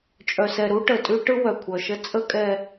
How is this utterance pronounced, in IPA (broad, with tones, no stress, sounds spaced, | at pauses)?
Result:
t͡ʃʼ œ˨ s ɛ˨ ɾ u˦ ʈ ə˨ tʼ ʉ˦ ʈ ɯ˦ w œ˨ kʷʰ œ˨ ʃ ə˦ t͡sʼ ə˦ kʼ ɛ˦